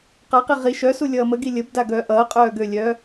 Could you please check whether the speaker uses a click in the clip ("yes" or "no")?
no